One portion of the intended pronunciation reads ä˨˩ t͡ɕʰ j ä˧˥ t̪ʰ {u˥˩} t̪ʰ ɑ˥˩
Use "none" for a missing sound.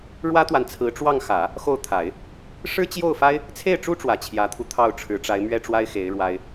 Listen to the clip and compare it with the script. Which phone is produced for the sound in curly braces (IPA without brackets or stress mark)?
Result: u˧